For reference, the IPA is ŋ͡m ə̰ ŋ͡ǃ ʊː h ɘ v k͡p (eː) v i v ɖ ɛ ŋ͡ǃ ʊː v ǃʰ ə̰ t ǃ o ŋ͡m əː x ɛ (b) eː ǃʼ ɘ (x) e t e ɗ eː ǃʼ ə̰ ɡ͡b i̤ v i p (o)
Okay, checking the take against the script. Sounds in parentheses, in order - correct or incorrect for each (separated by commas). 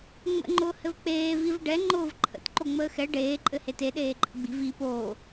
correct, incorrect, incorrect, incorrect